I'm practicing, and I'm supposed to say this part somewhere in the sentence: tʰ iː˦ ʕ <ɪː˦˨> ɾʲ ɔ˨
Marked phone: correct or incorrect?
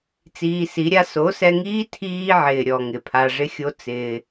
incorrect